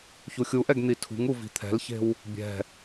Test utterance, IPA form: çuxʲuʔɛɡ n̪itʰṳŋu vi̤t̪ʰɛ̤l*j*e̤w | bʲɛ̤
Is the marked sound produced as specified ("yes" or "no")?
no